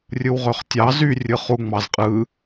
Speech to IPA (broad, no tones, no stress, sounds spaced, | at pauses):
rʲ ɯ w ʁ ø χ tʲ ɑ z y rʲ ɯ χ u ŋ͡m ɑ z qʼ ɯ